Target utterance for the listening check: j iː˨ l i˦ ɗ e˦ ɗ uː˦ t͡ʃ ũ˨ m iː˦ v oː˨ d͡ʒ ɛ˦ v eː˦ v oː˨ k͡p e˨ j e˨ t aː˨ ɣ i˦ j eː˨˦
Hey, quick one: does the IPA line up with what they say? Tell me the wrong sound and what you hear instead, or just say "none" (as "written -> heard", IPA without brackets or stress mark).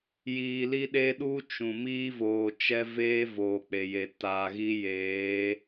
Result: d͡ʒ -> t͡ʃ